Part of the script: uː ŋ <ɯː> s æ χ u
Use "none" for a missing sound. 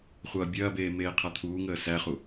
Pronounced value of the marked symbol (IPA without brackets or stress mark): əː